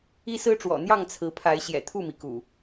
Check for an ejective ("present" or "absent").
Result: absent